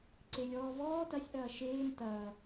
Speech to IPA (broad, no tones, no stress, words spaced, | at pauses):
ǀelʲɔːvɔː tɐsʲ ʔɐːʃeːn tɐː